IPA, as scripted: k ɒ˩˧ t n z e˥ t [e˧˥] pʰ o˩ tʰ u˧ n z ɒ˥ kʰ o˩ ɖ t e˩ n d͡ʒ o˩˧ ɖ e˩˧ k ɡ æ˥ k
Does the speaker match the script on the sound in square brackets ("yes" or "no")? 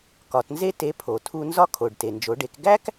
yes